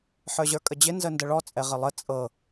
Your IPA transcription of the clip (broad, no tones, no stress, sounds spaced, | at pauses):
ħ ə˞ ʑ ə˞ kʼ ə d͡ʑ ɪ n z ə n d ə ɭ ɔ t͡sʼ ɛ ʁ ɪ lˠ ə t͡sʼ ɤ